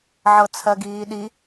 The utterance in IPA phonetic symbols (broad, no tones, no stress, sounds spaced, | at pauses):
ʕ ɤ t͡sʰ ɜ ɡ iː ɗ i